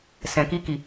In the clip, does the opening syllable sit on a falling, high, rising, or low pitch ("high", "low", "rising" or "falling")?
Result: low